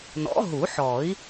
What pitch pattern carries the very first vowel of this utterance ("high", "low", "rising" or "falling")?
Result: rising